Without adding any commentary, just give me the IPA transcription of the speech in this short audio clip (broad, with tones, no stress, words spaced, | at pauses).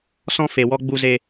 sɔ̃˧fe˨wɔ˧ ɡ͡bu˧ze˧